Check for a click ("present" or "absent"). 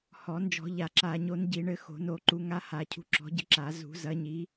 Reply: present